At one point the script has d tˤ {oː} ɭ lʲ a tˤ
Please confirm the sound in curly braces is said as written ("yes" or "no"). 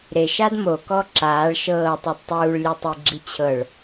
no